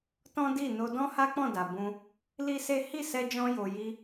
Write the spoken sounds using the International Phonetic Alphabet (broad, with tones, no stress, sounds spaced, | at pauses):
t ɔ̃˦ d i˦˨ n o˧ d ɔ̃˦ h a˦ k͡p ɔ̃˦˨ d a˨ b ũ˧ | l i˦ s e˦ h i˦˨ s ɛ˧ d͡ʒ ɔ̃˧ j o˨ j i˧